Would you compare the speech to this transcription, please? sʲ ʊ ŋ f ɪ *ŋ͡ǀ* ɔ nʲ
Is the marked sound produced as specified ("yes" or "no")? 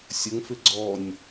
no